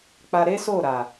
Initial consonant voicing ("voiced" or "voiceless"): voiceless